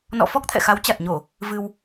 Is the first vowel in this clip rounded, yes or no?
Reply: yes